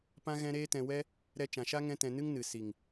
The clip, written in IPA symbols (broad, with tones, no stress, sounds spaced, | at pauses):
p ã˦ ɣ ɛ̃˦ ɾ eː˦ t ɛ̃˧ w ɛ˦ | ɾ ɛ˧ t͡ʃ ã˨ ʃ a˦ ŋ ɛ̃˦ t ɛ̃˧ n ɨ˦ ŋ n ɨ˨ s i˨ ŋ